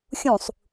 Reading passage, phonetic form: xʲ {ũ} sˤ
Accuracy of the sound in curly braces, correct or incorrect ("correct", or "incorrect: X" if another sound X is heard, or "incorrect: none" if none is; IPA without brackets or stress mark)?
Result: correct